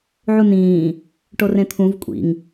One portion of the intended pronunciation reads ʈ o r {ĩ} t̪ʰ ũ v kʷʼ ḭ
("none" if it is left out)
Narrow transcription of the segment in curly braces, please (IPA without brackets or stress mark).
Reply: ẽ